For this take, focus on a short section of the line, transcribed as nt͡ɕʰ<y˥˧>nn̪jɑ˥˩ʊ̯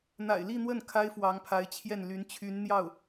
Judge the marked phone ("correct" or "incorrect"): incorrect